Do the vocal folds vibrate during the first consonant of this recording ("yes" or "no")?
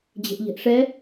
yes